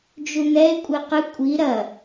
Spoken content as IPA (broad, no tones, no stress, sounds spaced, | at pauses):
d͡ʒ u n̪ ɛ e̯ kʷʼ e q ɨ kʷʼ i ɾ ɐ